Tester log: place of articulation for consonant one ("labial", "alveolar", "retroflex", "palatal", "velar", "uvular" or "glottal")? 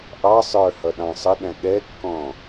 glottal